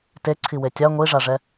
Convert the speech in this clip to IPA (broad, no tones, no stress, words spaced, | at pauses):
teǀʰiwe tʲa ŋʷiʐaʐɛ